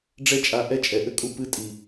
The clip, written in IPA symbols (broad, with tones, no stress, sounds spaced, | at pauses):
ɖ͡ʐ ɛ˦ t͡ʃʼ a˧ ʔ ɛ˦ t͡ʃʼ ɛ˨ ʔ ɘ˦ kʼ u˦ p ɨ˧ tʼ i˨